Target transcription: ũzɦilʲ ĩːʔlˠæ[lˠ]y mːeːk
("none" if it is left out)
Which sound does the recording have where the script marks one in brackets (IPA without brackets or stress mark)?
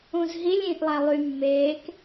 lˠ